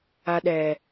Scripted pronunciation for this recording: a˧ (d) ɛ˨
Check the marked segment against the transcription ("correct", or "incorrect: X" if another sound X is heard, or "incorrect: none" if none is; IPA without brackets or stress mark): incorrect: ɗ